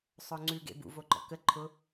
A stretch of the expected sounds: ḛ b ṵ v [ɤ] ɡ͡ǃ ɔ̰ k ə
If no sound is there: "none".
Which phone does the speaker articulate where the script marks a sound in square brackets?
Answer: o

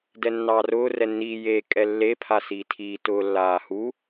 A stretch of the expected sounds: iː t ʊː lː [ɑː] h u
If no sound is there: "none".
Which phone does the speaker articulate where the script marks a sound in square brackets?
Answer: aː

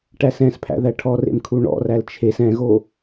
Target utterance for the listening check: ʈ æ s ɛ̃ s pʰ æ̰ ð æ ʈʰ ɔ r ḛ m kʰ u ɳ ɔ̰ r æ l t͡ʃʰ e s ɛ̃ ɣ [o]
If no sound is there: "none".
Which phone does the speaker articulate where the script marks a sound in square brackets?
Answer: o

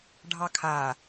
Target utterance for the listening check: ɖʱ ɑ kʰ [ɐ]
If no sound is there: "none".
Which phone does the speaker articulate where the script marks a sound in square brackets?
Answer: a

